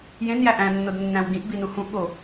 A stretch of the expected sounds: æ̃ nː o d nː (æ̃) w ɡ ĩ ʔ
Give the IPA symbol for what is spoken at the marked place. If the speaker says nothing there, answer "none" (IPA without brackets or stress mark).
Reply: æ̃